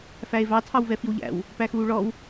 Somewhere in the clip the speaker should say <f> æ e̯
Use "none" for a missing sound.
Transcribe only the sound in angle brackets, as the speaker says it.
f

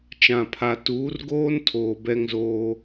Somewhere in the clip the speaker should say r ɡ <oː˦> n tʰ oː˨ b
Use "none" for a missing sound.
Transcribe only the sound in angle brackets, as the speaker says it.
oː˦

